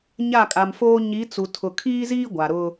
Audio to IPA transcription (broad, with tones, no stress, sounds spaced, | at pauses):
ɲ a˦˨ kʼ a˨ m f oː˦ ɲ i˨˦ t͡s u˨ tʰ ʊ˨ kʰ iː˦ z iː˦ ɡʷ a˨ ɾ ʊ˦